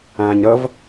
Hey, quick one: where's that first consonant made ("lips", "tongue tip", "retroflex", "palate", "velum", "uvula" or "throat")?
palate